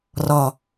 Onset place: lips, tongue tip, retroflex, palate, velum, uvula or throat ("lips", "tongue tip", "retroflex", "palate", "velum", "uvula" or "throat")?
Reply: tongue tip